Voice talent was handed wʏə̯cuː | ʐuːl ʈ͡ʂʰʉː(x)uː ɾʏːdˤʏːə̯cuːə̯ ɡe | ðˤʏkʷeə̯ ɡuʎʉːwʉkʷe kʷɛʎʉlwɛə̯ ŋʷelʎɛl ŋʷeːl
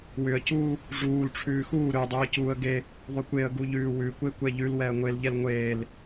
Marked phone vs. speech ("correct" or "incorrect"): correct